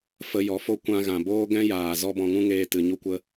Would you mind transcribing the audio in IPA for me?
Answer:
f ə˧ j ɔ˨˦ f o˦ kʷ ã˧ ɣ ã˨ b oː˦ ɡ ɛ̃˦ j aː˨ z ɔ˦ b ɔ̃˧ ŋ ũ˦ ŋ eː˧ t ɨ˨ ɲ u˦ kʷ ə˦

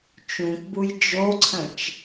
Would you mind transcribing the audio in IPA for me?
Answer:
t͡ʃ ũ k b u j d͡ʒ o ǀʰ ə̃ t͡ʃ

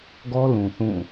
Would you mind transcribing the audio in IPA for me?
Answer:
ɡ ɔ˦ l ũ˨ θ ũ˦˨

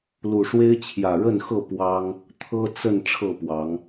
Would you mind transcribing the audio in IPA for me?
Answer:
l u˨˩ ʂ w e˦ ɪ̯ t͡ɕʰ j ä˨˩ ɻ ə˥˨ n x ɤ˥˨ p w ɑ˦ ŋ | t̪ʰ ɤ˦ t͡s ə˥˨ n ʈ͡ʂʰ ɤ˥˨ p w ɑ˨˦ ŋ

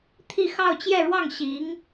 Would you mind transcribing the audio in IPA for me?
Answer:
t̪ʰ i˥˧ x ɑ˥˧ ʊ̯ t͡ɕ j ɛ˥˧ ɻ w ɑ˥˩ ŋ ɕ i˧˥ ŋ

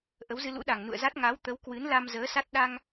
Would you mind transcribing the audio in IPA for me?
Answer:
ʔ ə˨˦ w z ɨ˧ l ṵ˧˥ ɗ a˨˩ ŋ n ṵ˧˨ ə̯ z a˦˥ t̚ ŋ a˨˦ w t̪ ə˨˦ w k w ɨ˨˦ n l a˧ m z əː˨˦ s a˦˥ t̚ ɗ a˧ ŋ

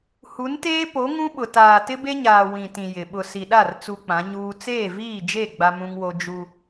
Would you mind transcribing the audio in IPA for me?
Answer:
h u˨˦ n t eː˦ p o˨˦ ŋ ũ˦ ɓ ʊ˨ t aː˨ t ɪ˦ b e˦ ɲ aː˨ w ĩ˨ t ĩ˨ j ɪ˨ ɓ ʊ˨ s i˨ ɗ a˦˨ r t͡s u˦ k͡p ã˨˦ ɲ uː˦ t͡s eː˦˨ v iː˦˨ d͡ʒ e˦˨ ɡ͡b a˦ m ũ˦ ŋ w o˦ d͡ʒ u˦

